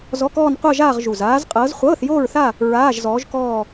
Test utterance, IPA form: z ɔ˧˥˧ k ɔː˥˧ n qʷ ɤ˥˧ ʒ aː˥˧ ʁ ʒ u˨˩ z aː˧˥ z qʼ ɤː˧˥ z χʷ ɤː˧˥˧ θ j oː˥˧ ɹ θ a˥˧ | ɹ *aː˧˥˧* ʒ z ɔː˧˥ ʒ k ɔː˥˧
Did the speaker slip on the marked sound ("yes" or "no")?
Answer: no